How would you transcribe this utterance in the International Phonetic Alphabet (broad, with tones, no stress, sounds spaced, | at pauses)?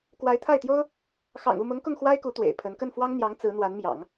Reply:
k w a˧˥ ɪ̯ t̪ʰ a˥˩ ɪ̯ t̪ j o˥ ʊ̯ | x ɑ̰˨˩ ŋ u˥˩ m ʊ˧˥ ŋ k ʊ˥˩ ŋ x w a˥ ɪ̯ k u˧˥ t̪ w ḛ˨˩ ɪ̯ pʰ ə˧˥ n k ə˥˩ n f w ɑ˥ ŋ n̪ j ɑ˧˥ ŋ t͡s ɹ̩˧˥ n̪ w a˧˥ n m j ɑ̰˨˩˦ ŋ